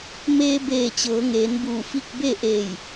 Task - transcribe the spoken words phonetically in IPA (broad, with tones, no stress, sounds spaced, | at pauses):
m eː˧ b eː˧˩ t͡ɕ ɤː˩˧ ŋ eː˩˧ n b uː˧˩ f i˥˨ k̚ b e˥˨ ʔ eː˧˩ j